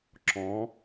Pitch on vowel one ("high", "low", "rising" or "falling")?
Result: rising